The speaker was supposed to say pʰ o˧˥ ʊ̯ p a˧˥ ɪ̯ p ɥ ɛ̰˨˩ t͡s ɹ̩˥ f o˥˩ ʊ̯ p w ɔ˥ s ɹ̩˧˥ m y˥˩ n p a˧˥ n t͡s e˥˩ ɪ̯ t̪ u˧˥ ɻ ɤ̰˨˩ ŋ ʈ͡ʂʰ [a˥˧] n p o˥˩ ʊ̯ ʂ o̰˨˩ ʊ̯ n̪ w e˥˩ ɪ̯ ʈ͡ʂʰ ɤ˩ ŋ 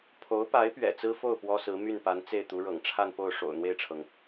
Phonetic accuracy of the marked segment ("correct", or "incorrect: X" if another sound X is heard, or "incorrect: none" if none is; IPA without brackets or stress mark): correct